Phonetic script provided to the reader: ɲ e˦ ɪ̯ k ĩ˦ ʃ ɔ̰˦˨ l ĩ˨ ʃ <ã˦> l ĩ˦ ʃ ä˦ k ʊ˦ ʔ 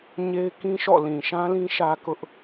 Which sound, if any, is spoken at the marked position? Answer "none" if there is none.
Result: ã˦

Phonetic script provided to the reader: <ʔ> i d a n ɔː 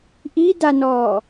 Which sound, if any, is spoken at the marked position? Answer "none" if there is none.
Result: ʔ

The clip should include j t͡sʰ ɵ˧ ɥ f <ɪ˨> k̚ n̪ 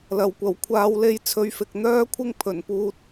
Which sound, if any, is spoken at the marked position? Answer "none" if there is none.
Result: ɪ˨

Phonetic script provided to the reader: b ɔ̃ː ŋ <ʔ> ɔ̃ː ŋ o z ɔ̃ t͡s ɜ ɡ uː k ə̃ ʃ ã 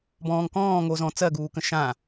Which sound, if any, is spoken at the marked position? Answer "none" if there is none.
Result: k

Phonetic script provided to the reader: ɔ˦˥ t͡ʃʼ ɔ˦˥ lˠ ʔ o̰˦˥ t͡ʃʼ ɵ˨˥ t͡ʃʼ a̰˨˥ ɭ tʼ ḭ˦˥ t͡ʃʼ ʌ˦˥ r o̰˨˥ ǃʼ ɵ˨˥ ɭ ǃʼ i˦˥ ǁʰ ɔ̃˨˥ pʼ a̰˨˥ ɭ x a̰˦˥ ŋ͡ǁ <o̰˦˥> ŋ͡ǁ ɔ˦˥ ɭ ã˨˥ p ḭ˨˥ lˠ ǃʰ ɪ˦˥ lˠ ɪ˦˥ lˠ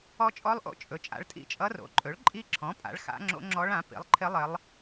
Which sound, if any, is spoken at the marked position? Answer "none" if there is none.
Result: o̰˦˥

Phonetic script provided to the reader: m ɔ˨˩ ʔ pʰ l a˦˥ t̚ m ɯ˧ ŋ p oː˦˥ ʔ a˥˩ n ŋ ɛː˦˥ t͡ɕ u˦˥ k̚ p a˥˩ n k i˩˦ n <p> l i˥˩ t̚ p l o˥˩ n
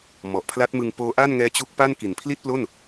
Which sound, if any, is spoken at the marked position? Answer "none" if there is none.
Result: pʰ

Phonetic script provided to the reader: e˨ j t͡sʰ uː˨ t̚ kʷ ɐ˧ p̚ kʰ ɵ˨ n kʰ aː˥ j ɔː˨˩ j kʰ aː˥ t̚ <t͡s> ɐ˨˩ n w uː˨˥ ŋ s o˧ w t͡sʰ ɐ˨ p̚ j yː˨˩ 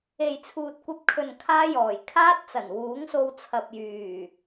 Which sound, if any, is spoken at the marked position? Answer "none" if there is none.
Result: t͡s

